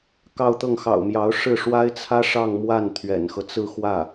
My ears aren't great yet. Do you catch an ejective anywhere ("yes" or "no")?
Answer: no